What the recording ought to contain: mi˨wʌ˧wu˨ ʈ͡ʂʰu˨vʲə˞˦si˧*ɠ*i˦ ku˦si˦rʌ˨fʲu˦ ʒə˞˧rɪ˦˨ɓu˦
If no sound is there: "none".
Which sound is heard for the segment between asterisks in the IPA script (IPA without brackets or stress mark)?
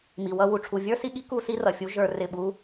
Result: ɠ